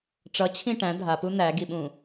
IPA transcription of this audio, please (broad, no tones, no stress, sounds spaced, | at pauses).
ʈ͡ʂ ʌ t͡ɕʰ ĩ ʈ æ̃ dʱ a p u n̪ æ ɡ i ɓ ũ